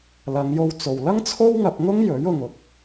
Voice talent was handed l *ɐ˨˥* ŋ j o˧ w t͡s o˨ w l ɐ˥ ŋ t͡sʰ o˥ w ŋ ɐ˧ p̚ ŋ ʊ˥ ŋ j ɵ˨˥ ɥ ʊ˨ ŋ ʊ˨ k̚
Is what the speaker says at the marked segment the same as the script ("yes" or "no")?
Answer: no